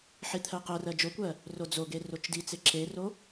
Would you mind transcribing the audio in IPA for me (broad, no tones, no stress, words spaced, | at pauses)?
ħit̪ʰɜqɜrɜ d͡ʒokʷɜ | rod͡zoɡe rot͡ʃdit͡se ǁero